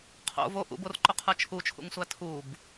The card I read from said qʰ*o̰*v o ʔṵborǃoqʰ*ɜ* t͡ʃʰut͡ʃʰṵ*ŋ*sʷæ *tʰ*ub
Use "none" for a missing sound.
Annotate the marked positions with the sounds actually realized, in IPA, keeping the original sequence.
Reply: o̰, ə˞, ŋ, tʰ

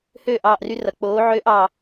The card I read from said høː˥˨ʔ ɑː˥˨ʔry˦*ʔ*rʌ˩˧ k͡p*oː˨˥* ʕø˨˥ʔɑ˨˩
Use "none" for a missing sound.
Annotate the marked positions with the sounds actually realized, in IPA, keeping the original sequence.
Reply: none, oː˨˥

